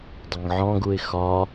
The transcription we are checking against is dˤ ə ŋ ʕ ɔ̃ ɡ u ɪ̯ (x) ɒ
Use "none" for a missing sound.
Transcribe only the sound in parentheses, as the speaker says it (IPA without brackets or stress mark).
x